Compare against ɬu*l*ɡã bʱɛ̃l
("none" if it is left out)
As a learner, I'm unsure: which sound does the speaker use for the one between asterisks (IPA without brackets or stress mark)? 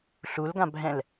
l